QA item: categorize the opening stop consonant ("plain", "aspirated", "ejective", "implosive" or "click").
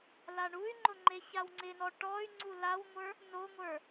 click